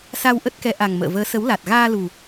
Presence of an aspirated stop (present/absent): absent